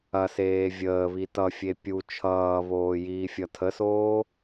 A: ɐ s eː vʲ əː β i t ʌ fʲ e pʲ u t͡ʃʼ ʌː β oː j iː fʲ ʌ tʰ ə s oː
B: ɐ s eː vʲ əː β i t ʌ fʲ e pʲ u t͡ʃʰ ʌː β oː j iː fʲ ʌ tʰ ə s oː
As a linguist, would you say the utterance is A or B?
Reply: B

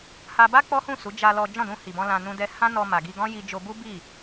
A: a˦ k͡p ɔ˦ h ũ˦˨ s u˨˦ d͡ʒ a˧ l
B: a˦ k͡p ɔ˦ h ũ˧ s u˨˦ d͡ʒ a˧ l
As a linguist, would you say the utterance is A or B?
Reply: A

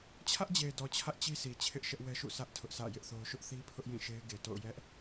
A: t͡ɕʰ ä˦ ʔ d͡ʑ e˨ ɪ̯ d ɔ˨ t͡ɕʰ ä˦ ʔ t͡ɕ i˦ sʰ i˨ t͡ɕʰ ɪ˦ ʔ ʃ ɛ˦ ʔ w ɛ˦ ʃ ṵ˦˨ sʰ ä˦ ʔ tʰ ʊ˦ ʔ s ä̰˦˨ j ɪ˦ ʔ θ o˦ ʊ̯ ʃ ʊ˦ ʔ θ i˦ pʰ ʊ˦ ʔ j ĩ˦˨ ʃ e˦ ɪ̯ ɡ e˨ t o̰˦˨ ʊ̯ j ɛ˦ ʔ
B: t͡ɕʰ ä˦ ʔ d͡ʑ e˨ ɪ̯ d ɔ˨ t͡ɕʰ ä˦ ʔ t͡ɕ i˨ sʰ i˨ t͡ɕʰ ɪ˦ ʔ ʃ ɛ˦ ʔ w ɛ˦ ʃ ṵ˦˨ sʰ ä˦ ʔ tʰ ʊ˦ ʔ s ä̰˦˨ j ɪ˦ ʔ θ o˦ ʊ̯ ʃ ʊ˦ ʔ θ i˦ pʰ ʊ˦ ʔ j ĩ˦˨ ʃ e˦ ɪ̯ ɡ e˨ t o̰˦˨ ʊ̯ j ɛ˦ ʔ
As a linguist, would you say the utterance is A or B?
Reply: A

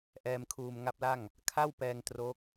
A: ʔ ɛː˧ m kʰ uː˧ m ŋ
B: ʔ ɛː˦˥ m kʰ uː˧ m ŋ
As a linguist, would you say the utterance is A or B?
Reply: A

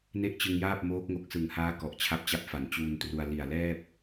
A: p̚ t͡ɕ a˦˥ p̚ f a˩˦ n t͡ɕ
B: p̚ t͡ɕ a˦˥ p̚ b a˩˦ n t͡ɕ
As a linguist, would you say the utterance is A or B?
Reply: A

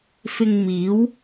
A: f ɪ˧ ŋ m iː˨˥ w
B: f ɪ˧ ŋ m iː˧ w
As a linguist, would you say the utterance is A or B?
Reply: A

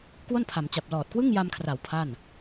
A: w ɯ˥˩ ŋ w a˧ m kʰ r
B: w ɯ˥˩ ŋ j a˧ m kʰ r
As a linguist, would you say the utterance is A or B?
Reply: B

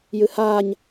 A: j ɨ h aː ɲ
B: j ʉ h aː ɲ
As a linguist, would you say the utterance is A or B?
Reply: A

